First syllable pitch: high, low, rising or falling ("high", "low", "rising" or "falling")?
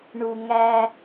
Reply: low